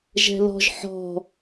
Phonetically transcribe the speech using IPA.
ʒɛ̤lɔ̤ʒ ħɔ̤

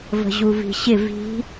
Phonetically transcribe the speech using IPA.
və̤ʑuvi̤ɕɪ vi̤

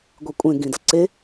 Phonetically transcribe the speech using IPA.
ɡʷekʷʼẽ ɡĩdʌǀe

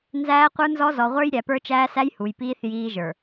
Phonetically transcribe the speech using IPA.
nzæː˦qʷə˞˦nzɔ˦ zɔ˨ʁʷə˞˦j ɾʲæ˨pə˞˦t͡ʃæː˦sæ˦j hu˨jpiː˦θ jiː˦ʒə˞˨

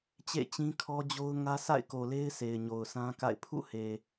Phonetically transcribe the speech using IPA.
t͡ɕḛ˦˨t͡ɕĩ˦kʰɔ˦d͡ʑo˦ʊ̯ ŋä˦ sʰa̰˦˨ɪ̯ko˨le˦ɪ̯ sʰe˨ɪ̯ɲo˨ʊ̯sã˦ka̰˦˨ɪ̯ pʰṵ˦˨he˨

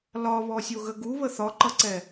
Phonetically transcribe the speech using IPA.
lɒβɔsʲoɣə ɡuβə θɒǃʌǀɛ

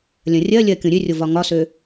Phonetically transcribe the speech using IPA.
lʲɐ̃rʲɜlʲɜ kʲõɾʲørʲo vɒŋɒsø

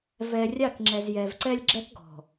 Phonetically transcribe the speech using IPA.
vɛ˨rʲa˦˨kŋ͡ǁɛ˨z jɛ˨vǀɛ˦lʲɡ͡ǁɛ˦kɡɔ̤˨

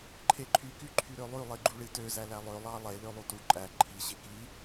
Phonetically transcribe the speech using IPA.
ǃʰeǃʰy kyǃʰyɾølˠy lˠiɡ͡ǃuɭitø zælælˠø lˠɑlˠe lølˠutu ǃʼæ ǃʰi ɕeki

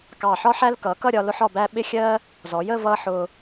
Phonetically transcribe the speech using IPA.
kɑ˧˩ħɒ˥ħæ˥l kʌː˩˧kʌ˥˧ɾʲɒ˧ lʊ˥ħɒ˥˧bæ˥ ɓɪ˥xʲɜ˥ | zɔ˩˧jə˥˧ vʌː˥ħʊː˧

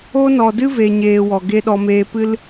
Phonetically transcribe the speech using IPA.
o˦ nɔ˨dɨ˦ve˨ɲeː˨ wɔ˨ɡe˦ɗɔ˧ meː˧pɨ˦l

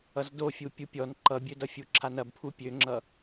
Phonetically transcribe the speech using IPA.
ʌzdofʲu pʲupʲɔn ǃʌbʲødʌfʲu ǁʰanɐbpʰu pʲøŋ͡ǁʌ

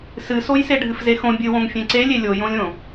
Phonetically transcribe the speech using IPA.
sɨsoj seɖʱɨfzexõ bʲɨwõŋ fʲẽǀelʲe lʲojõlʲõ

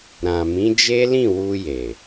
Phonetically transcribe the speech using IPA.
ɾã˨mĩ˨˦d͡ʒe˦ lĩ˦˨wu˧je˨

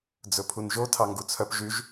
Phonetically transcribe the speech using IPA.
d͡zɵpʰunʒo tʰɑŋɡut͡sʰœp ʒyʒ

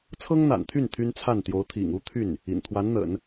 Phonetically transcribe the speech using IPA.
t͡sʰɤ˥ŋn̪a̰˨˩nt̪ʰy˥˩n t̪ʰy˥nt͡sʰa˥˩n t̪jo˧˥ʊ̯t̪ʰḭ˨˩ŋu˥t̪ʰy˥˩n | ḭ˨˩n t̪ʰwa˧˥nn̪ə̰˨˩˦n

